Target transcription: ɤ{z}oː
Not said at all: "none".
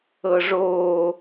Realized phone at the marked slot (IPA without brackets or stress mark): ʐ